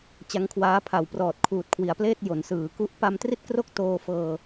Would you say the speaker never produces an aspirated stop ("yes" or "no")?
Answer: no